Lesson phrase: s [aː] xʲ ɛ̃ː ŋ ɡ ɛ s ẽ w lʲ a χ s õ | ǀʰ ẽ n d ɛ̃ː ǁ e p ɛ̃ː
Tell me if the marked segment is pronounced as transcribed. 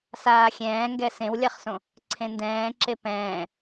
yes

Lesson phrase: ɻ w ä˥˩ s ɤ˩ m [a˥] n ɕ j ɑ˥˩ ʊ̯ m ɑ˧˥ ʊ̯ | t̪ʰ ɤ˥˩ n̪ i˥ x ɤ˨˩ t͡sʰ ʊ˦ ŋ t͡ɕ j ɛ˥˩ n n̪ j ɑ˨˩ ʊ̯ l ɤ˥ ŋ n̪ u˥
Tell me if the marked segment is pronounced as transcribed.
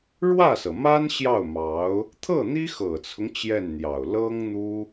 yes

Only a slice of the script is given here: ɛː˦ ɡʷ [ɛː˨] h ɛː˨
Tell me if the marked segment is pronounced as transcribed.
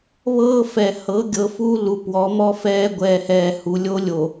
yes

